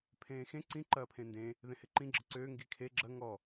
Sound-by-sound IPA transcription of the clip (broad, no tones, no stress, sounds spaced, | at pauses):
pʰ ẽː x ẽ ǀ ĩ ǃ ɐː pʰ ẽ n d ẽ | ð ẽ h e ǃ ĩ ɡ͡ǁ ə ǀ øː ŋ ɡ i kʰ e ɡ͡ǁ ɐ ŋ ɔ